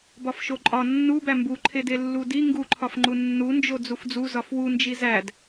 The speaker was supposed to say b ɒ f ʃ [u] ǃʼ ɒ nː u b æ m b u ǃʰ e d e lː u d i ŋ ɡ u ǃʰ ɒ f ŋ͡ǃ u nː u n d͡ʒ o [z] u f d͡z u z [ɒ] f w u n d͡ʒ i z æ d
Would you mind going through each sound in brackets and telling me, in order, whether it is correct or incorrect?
incorrect: o, incorrect: d͡z, correct

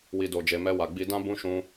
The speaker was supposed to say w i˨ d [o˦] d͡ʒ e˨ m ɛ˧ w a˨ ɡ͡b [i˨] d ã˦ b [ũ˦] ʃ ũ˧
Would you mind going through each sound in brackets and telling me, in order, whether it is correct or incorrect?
incorrect: o˨, incorrect: i˧, incorrect: ũ˧

